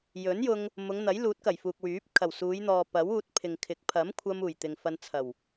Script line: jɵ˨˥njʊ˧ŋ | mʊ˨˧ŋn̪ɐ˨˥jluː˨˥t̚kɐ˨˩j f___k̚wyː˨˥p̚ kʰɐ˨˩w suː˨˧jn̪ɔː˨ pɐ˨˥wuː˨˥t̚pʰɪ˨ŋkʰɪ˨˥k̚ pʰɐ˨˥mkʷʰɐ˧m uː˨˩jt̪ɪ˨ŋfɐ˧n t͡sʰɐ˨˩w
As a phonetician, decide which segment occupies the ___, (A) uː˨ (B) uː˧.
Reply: A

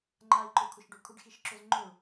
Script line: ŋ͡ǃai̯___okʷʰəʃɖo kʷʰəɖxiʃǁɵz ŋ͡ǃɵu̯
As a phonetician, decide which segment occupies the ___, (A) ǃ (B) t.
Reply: A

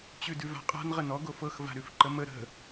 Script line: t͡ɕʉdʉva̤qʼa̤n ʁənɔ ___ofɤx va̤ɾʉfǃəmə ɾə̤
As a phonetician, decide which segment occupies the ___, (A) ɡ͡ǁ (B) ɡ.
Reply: B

